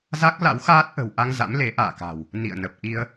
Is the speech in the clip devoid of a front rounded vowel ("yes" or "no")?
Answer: yes